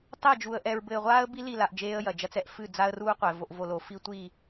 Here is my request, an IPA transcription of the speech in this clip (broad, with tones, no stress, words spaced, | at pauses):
tˤɛ˦˨d͡ʒu˨ə̯ ʔɛ˨ɹ bɘ˨ɪ̯ʁʷaː˦ə̯bi˦ li˦˨la˨ʔ d͡ʒeː˦ə̯jɐ˨d͡ʒɐ˦t͡s ɛ˨ʔfɨ˦˨d͡za˦ə̯ ruː˦qʷɛ˨ vo˨ʔvo˨lo˨ fi˦tʷi˦˨